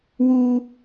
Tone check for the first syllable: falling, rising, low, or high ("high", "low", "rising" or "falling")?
low